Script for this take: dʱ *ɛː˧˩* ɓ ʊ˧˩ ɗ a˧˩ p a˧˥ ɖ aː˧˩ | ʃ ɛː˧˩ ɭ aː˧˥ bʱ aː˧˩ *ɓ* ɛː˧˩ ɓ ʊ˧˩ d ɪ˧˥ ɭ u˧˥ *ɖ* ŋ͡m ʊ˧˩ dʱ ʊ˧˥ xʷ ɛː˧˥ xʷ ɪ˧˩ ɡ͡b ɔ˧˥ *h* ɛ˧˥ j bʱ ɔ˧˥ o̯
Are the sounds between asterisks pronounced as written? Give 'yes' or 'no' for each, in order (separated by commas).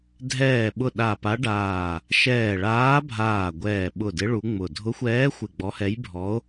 yes, no, no, yes